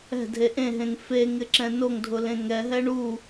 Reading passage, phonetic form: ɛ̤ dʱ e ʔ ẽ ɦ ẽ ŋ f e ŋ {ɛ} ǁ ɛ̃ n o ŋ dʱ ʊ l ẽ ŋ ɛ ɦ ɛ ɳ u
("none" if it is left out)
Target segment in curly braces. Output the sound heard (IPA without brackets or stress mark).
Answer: ɪ